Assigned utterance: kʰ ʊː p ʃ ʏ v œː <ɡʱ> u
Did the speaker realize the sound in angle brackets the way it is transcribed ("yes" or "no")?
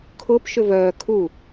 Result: no